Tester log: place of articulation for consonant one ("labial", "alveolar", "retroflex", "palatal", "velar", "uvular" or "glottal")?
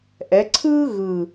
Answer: glottal